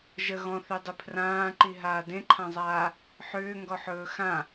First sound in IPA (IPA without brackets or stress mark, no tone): ʒ